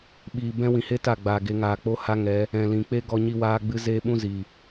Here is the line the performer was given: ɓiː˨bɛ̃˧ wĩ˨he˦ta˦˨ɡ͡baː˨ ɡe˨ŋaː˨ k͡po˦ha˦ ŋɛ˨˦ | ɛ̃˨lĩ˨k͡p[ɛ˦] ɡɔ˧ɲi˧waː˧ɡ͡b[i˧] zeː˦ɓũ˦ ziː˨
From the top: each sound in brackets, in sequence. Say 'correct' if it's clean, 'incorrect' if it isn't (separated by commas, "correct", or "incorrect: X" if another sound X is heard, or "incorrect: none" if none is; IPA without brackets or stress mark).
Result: incorrect: e˦, incorrect: ɨ˧